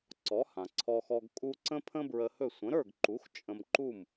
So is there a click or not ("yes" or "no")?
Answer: yes